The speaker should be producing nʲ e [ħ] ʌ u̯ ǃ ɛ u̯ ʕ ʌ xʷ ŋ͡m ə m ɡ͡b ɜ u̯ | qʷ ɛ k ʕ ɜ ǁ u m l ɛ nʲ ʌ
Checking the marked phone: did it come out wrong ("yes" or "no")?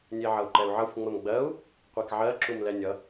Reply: yes